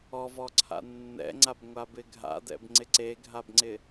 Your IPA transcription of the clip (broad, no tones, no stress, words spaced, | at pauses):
ɔvɔǀʰa̰ nːɛ̰ŋ͡ǀabŋʷabɪ ɡʱa̰dɛ̰bŋ͡ǀɪ ǀeɡʱabŋ͡ǀɪ